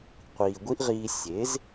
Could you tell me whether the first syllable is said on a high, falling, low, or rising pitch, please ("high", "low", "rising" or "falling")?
low